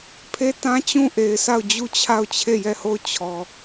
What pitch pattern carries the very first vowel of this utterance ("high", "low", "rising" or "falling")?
high